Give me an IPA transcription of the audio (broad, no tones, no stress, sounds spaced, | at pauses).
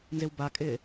n z ɪ w b a kʼ ɪː